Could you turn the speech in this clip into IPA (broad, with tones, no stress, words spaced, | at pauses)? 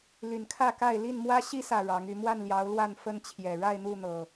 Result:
ly˨˩nkʰä˥˨ka˥˨ɪ̯ li˥˨nmwä˦ ɕi˦sä˨˩ ɻɑ˨˦ŋy˨˦ mwa˥˨nljɑ˨˦ʊ̯lwa˥˨n fə˦n t͡ɕʰjɛ˨˩ ɻa˥˨ɪ̯n̪u˥˨n̪ɤ˨˩